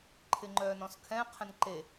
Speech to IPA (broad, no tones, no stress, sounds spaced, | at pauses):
ǃʰ ɪ ŋ͡ǃ œː n ɔ̃ s kʰ ɛ̃ qʰ ɛ̃ n ǃ e